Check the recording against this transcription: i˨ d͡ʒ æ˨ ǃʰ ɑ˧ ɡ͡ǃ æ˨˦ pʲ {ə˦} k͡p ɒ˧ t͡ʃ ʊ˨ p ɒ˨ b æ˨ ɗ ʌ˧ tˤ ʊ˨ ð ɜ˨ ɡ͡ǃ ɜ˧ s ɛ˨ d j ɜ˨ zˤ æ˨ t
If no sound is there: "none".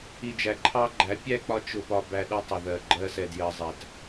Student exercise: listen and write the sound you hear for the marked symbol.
æ˦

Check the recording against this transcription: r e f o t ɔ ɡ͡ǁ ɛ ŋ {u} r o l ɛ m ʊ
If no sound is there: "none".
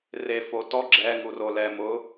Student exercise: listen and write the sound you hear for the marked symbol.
u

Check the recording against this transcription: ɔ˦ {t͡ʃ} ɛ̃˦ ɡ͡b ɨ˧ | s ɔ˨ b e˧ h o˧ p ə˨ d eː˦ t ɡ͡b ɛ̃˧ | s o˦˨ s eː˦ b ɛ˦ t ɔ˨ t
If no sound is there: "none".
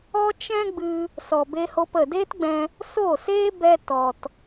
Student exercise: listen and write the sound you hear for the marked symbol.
t͡ʃ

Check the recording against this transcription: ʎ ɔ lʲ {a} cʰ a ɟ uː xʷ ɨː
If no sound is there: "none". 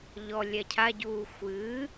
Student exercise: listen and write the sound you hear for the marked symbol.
æ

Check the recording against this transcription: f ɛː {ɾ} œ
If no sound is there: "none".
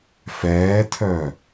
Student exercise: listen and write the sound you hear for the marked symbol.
tʰ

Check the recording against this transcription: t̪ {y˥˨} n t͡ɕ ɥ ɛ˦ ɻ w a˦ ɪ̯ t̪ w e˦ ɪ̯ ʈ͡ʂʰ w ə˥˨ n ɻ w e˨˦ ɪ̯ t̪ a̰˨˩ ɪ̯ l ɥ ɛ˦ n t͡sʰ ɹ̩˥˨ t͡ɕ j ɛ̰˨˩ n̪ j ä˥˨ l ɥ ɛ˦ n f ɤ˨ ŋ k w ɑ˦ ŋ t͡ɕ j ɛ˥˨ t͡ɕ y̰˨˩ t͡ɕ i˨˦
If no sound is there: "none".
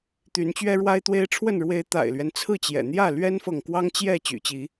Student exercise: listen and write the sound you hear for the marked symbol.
y˨˦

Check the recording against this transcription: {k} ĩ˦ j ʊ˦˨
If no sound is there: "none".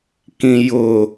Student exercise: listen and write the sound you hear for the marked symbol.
k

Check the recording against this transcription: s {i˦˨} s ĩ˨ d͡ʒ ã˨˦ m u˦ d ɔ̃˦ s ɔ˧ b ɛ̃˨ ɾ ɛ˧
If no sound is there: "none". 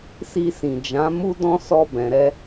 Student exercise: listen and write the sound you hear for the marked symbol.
i˧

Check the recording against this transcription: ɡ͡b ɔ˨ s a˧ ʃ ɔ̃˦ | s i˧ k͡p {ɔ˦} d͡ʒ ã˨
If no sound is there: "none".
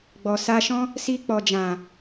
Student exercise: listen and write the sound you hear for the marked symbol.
ɔ˨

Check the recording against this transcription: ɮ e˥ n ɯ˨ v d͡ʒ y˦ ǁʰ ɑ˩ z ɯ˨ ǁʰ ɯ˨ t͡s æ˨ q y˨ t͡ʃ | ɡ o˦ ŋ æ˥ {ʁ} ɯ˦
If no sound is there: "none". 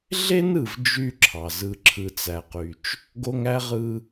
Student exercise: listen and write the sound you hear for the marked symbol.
ʁ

